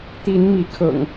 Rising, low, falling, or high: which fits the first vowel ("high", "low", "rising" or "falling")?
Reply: rising